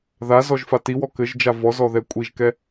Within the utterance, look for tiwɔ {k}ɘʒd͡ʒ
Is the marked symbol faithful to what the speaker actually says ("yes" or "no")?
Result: yes